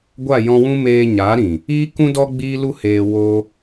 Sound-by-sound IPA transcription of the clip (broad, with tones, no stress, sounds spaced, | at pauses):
ɡʷ a˦˨ j ɔ̃˧ w ũ˦ m eː˧ ɲ a˨˦ ɾ ĩ˨ | iː˦ k ũ˦ d ɔ˦ ɡ͡b iː˦ l u˦ h eː˧ w oː˧